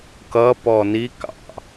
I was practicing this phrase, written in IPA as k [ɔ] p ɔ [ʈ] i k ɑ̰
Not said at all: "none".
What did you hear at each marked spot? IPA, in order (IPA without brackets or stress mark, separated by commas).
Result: ʌ, n